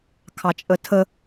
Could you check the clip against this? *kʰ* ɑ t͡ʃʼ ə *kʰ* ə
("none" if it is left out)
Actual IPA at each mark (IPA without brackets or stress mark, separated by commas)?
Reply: kʰ, tʰ